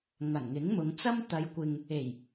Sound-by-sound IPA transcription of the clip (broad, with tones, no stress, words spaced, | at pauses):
ŋɐ˨˩nŋɪ˨˥ŋmʊ˨˧ŋ t͡sɐ˥mt̪ɐ˨˧jkʷɪ˨ŋ | e˨˩j